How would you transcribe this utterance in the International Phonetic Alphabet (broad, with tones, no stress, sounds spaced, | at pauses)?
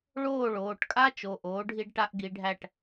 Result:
ɭ oː˥˨ ɭ oː˩˧˩ ʈ kʼ a˥ t͡ʃ o˩˧˩ ʔ oː˨˥ ɖʱ i˥ ɖ ʈ a˥ ʔ ɡ i˨˥ ɖʱ æ˥˨ ʈ